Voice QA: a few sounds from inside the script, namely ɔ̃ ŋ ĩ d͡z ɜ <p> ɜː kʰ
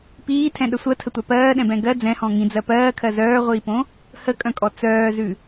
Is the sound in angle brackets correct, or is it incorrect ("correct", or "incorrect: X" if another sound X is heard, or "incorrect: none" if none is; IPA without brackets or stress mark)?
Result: correct